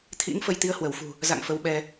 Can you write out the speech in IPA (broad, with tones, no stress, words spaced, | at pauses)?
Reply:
t̪ʰḭ˧˥ŋ fə˧jt̪i˨˦ə̯hwə˧˩w fṳ˨˩ | za̰˧˨ŋ fə˨˦wɓɛ˧